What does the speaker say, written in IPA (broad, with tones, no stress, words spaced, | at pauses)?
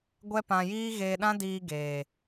ɡʷɛ˦pã˧jiː˦ ɣeː˧ɗã˦diː˧ ɡeː˨